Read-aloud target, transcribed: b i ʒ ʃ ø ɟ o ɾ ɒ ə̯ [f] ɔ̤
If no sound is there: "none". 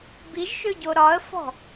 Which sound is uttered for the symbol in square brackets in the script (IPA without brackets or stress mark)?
f